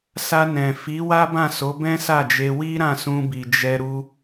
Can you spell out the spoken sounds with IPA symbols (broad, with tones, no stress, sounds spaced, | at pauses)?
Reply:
s a˧ n ɛ̃˨ f i˨˦ w a˦ b ã˦˨ s o˨˦ b ɛ̃˦ s a˦˨ d͡ʒ e˧ w i˦ ɾ ã˦˨ s ũ˧ b i˨ d͡ʒ ɛ˧ ɾ u˧